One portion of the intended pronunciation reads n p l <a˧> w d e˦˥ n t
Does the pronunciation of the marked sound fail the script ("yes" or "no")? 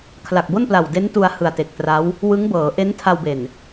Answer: yes